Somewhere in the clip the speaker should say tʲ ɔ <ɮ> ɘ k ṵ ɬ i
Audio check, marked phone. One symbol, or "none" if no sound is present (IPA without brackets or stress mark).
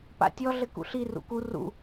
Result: ɮ